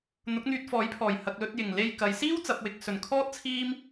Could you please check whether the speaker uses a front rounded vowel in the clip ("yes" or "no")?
yes